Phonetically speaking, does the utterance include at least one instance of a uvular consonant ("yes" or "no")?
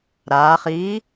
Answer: yes